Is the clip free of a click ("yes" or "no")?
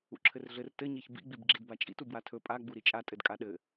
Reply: no